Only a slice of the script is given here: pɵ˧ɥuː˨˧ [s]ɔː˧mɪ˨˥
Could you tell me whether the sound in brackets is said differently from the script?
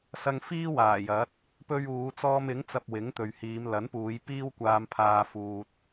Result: yes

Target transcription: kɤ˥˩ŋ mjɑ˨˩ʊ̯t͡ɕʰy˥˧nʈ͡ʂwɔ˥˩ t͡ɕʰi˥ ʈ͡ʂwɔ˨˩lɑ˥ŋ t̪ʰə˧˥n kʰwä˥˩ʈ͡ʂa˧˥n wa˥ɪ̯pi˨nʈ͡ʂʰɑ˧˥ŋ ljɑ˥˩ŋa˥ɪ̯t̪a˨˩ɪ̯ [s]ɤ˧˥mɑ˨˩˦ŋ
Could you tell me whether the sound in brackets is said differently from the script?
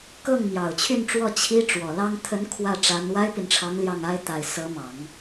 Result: no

